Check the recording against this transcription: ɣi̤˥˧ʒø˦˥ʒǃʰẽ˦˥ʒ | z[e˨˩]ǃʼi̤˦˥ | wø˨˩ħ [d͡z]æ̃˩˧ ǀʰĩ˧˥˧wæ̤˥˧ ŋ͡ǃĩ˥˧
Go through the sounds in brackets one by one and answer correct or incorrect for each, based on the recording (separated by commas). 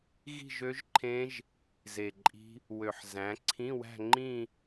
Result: correct, incorrect